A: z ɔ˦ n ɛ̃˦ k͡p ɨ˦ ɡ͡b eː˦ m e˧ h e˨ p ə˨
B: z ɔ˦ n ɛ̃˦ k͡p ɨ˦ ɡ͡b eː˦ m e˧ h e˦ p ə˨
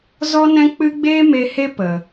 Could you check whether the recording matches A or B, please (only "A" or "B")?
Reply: B